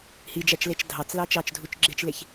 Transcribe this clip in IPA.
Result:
hid͡ʒæt͡ʃlet͡ʃ dʱɑt͡slɑ t͡ʃɑt͡ʃdʱut͡ʃɡ͡ǁet͡ʃleç

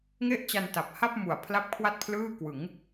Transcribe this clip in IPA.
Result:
ŋe˥˩ʔt͡ɕa˧nta˨˩p̚ha˥˩p̚ mu˨˩a̯pʰla˥˩p̚ kʰwa˥˩t̚pʰlɯː˥˩kwɯ˩˦ŋ

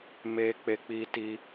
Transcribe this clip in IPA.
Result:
me˧ k͡pe˧k͡pi˧ti˧

